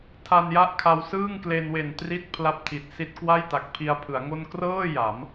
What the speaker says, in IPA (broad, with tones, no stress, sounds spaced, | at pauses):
tʰ a˧ n j a˥˩ ʔ kʰ a˧ w s ɯː˥˩ ŋ k l e˧ n w e˨˩ n t r i˦˥ t̚ pʰ l a˥˩ p̚ tʰ i˨˩ t̚ s i˦˥ t̚ k w a˥˩ j t a˨˩ k̚ pʰ i˧ a̯ pʰ ɯ˩˦ a̯ ŋ o˥˩ n k r ɤː˥˩ j a˩˦ m